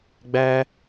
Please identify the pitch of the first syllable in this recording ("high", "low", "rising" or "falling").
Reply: high